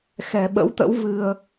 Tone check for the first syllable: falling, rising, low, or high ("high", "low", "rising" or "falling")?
low